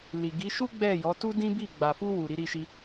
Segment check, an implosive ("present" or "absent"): absent